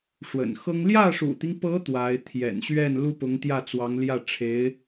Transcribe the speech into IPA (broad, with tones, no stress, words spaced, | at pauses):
ʂwə̰˨˩nxɤ˥ŋ ljä˥˩ʂṵ˨˩t̪i˦ŋpɤ˧˥ t̪wa˧˥ɪ̯ t̪ʰjɛ̰˨˩nɕɥɛ˥˩n lu˥pʊ˧˥ŋt̪jä˥˩t͡swɑ˧˥ŋ ljä˥˩ʈ͡ʂʰe˧˥ɪ̯